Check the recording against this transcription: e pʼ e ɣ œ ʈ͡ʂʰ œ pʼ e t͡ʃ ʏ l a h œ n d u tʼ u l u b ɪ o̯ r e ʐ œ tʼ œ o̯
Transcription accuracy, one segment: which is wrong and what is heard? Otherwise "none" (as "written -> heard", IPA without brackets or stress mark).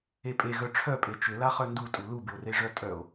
h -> χ